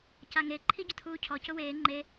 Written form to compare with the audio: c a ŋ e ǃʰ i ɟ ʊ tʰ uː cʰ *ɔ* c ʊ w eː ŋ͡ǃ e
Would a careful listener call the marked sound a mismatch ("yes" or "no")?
no